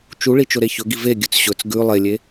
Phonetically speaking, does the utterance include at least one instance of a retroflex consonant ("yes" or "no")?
yes